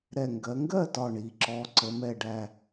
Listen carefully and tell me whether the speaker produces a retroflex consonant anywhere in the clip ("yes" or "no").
yes